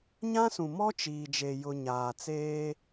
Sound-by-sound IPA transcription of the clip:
ɲ ã˦ s ũ˨ m ɔ˦ t͡ʃ iː˨ d͡ʒ e˨ j ʊ˨ ɲ aː˨ t͡s eː˦

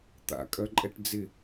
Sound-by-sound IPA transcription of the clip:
t̪ a̰ kʼ œ ǃʼ ɛ ʈ d͡z ɪ

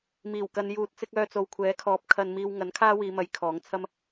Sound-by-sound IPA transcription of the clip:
m iː˨˩ w k ɐ˨ n j uː˨ t̚ t͡s ɪ˧ k̚ œː˧ t͡s o˨ w kʷʰ ɛː˨˥ kʰ ɔː˨˥ p̚ kʰ ɐ˧ n m iː˧ w ŋ ɐ˨˥ n kʰ aː˥ w iː˨˧ m ɐ˨˧ j kʰ ɔː˨˥ ŋ t͡sʰ ɐ˥ m

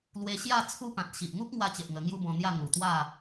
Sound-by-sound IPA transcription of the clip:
l w e˧ ɕ j a˥˧ t͡sʰ u˦ p ã˨ t̚ ɕ i˨ ʔ ŋ u˦ k̚ ŋ w a˧ t͡ɕ e˨ ʔ ŋ ə˧ ŋ j u˦ b ɔ̃˧ n̪ j a˥˧ ŋ u˨˩ t̪ w a˥˧

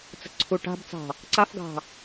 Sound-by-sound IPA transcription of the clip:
t͡s ə̤ ǀʰ u ʈ a̤ b t͡s ɑ̤ | ǀ a f ɡ ɑ̤

